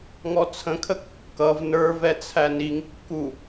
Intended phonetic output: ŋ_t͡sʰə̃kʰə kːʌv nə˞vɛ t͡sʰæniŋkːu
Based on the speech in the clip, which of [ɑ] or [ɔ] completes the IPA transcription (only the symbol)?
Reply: ɔ